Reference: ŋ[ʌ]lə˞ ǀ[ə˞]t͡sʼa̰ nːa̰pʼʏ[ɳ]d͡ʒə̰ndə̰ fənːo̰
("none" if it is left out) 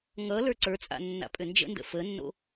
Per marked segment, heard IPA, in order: ʌ, ə˞, n

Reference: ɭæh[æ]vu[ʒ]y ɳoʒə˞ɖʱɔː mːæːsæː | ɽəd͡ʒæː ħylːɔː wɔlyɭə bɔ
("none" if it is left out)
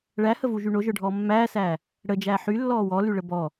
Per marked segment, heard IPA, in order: ə, ʒ

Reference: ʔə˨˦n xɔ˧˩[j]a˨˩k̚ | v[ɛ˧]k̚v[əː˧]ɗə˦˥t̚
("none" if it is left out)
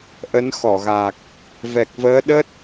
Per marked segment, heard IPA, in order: ɣ, ɛ˨˩, əː˨˦

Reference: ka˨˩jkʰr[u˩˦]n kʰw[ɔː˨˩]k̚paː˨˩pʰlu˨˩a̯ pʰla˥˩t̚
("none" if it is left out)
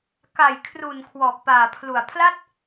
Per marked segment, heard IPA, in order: u˨˩, ɔː˨˩

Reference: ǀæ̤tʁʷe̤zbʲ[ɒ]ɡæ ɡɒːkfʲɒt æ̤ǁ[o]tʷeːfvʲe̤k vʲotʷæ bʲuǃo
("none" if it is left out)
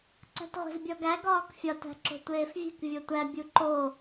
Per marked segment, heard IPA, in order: ɒ, o̤

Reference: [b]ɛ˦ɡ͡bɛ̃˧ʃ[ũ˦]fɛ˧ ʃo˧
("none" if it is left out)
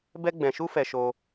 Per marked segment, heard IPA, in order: b, u˦

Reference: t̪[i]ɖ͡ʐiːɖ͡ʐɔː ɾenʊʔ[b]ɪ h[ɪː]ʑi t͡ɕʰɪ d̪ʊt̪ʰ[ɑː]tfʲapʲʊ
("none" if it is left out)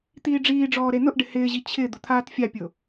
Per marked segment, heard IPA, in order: iː, ɖ, ɪː, aː

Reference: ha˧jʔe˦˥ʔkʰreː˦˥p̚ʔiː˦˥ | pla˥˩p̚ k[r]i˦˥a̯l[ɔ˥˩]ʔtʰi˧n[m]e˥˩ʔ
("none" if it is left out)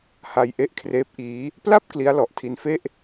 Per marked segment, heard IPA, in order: l, ɔ˨˩, f

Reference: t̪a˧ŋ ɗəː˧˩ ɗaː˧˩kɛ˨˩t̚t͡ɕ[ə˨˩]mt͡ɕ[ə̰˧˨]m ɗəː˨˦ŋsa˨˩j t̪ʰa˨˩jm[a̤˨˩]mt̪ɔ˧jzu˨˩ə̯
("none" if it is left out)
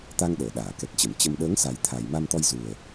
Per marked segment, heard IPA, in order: ə˧˩, ə˧, a˧

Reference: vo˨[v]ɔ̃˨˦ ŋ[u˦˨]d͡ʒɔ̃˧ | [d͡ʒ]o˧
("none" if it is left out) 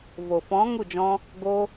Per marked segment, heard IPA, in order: f, u˦˨, ɡ

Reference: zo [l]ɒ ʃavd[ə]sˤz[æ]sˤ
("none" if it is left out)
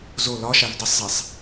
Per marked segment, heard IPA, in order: l, ə, ɛ

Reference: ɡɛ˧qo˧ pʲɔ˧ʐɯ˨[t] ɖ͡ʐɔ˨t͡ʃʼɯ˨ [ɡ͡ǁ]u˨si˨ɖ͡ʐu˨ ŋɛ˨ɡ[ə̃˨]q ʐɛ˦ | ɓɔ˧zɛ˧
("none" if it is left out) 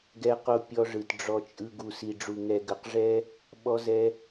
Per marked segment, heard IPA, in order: t, ɡ, ə˨

